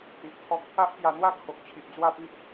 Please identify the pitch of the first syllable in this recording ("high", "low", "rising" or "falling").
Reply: low